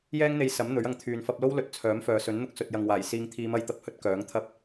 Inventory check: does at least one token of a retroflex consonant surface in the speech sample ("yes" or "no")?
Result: no